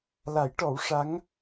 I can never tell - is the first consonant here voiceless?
no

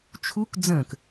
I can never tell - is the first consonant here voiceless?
yes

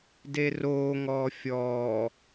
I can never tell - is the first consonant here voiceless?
no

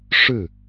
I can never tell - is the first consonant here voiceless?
yes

